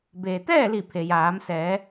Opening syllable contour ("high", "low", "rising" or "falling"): low